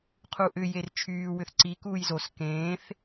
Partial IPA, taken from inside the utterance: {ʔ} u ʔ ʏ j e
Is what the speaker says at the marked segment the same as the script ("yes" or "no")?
no